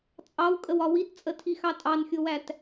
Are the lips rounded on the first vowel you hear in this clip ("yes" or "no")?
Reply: no